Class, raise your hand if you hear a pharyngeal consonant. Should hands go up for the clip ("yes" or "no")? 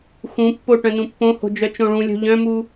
no